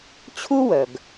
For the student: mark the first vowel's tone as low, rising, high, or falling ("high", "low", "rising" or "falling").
high